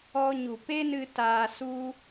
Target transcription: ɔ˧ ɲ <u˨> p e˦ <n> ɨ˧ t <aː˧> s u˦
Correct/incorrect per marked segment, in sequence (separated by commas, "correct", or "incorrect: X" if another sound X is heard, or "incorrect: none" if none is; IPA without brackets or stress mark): correct, correct, correct